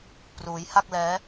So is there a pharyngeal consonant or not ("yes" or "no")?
no